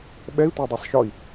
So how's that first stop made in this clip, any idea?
implosive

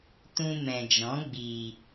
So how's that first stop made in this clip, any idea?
plain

